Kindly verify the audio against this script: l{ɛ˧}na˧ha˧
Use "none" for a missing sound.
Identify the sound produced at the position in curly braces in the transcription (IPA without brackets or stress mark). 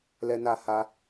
ɛ˧